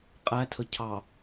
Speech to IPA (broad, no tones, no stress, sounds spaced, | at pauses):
qʼ æ tʰ ə cʰ ɑ